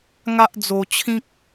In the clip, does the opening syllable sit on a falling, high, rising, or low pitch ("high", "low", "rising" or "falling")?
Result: high